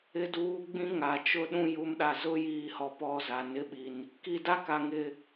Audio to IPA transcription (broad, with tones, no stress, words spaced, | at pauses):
ɪ˨duː˨ ɡ͡bĩ˦ŋa˨t͡ʃʊ˦ ɗũ˦˨ju˨˦mɗa˨ zʊ˦jiː˨hɔ˨ pɔ˦˨za˨ nɪ˦ɓi˨n | ki˨da˦ka˨ ŋɪ˨